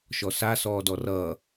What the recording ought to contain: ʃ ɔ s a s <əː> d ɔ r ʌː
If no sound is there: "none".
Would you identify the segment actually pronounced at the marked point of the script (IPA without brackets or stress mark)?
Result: ɔː